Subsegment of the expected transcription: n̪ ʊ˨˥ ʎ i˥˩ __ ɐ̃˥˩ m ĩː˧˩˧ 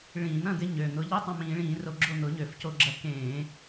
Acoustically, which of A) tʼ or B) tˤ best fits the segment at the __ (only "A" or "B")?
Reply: B